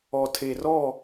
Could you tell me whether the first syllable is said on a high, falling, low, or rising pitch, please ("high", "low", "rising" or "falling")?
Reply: low